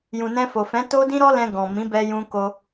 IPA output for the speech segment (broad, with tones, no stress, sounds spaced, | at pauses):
j ũ˨ n ɛ̃˧ f o˨ f ɛ̃˨˦ t o˦ d ĩ˦ ɾ ɔ˦ l ɛ̃˧ ɡ ɔ̃˨ m ĩ˨˦ b ɛ˧ j ũ˧ k o˧